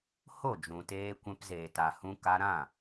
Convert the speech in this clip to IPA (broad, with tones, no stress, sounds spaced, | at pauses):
h o˦˨ d͡ʒ ũ˨ t eː˧ kʷ ɛ̃˧ p z eː˨ t a˨ h ũ˧ k a˧ ɾ ã˦˨